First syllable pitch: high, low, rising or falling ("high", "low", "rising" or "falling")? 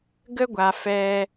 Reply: high